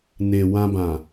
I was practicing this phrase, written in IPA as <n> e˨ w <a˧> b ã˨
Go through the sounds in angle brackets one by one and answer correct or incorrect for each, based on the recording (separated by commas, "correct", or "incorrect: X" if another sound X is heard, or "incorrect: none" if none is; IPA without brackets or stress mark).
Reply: correct, incorrect: ã˧